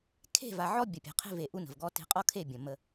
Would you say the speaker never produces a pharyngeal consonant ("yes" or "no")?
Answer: no